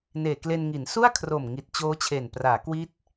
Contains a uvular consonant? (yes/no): no